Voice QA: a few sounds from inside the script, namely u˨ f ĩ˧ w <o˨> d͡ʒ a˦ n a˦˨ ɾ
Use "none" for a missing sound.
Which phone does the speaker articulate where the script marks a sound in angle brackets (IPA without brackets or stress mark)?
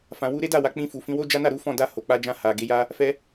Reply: o˦